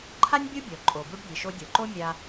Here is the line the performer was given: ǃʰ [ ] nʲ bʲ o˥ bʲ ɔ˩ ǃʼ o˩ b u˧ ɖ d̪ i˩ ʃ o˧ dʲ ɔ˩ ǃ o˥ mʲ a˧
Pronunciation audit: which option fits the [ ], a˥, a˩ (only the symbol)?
a˥